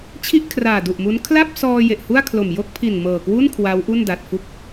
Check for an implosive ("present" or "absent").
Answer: absent